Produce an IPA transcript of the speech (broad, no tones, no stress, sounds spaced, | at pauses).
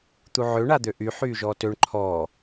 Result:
t̪ u ʕ ø ɳ a d̪ ø ʔ y ħ yː ʒ ɔː t ø ɳ ǃʰ ɔː